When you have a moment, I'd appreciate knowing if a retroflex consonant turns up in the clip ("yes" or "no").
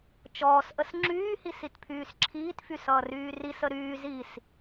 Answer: no